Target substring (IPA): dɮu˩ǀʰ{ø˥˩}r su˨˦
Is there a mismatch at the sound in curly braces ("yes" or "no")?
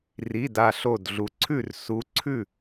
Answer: yes